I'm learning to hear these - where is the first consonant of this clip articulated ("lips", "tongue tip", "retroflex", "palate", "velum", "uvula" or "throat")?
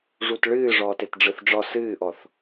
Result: retroflex